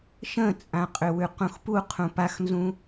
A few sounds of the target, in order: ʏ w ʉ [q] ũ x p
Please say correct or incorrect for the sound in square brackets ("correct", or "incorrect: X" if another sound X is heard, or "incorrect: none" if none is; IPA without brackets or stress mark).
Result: correct